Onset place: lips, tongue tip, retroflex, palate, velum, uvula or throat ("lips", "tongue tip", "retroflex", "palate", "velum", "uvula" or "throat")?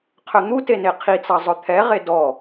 uvula